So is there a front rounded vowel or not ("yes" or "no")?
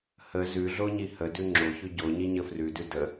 no